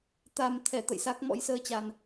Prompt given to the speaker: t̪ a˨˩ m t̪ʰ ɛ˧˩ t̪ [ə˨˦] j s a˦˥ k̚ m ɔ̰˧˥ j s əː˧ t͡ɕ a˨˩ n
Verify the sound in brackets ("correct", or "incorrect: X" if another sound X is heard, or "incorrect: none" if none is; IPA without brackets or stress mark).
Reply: incorrect: ə̰˧˨